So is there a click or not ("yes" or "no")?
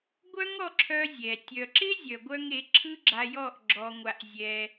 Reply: yes